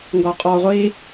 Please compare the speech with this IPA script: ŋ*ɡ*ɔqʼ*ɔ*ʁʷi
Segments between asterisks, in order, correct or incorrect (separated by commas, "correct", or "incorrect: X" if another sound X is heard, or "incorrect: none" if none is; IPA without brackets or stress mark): correct, correct